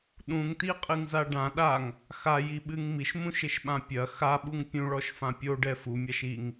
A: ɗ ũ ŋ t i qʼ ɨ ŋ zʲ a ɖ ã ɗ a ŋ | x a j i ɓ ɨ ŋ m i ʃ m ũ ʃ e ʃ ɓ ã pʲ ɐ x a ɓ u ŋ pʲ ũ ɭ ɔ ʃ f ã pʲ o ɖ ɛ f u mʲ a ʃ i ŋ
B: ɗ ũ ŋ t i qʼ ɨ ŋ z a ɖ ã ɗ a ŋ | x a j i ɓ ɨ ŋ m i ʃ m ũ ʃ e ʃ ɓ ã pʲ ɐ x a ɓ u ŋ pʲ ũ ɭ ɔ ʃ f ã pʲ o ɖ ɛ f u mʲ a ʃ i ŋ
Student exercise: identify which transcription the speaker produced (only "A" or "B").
B